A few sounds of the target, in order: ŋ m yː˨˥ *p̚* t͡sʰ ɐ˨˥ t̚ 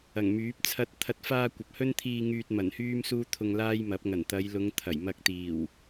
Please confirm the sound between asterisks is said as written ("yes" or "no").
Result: yes